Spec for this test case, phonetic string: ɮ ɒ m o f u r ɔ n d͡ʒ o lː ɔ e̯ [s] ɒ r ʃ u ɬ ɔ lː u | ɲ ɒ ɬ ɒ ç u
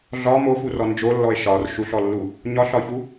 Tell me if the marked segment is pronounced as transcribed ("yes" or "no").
no